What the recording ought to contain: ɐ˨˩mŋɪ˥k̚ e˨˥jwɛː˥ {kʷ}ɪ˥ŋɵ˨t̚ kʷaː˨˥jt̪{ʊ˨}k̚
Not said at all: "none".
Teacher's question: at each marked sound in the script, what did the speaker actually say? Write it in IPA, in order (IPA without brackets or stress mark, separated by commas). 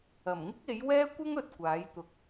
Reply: kʷ, ʊ˨